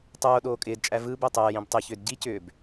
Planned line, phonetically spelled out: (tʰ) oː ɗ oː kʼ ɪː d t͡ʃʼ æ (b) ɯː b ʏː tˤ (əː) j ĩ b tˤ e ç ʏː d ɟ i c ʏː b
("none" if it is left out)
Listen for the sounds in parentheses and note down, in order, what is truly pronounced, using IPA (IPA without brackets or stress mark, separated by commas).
tˤ, v, ɛː